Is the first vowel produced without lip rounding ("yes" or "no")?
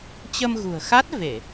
yes